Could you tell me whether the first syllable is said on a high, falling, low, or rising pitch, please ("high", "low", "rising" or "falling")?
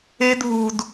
high